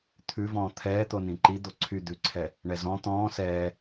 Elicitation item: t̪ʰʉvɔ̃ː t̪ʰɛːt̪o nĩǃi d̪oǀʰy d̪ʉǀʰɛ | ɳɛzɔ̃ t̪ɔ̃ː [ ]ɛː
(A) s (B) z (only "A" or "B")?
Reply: A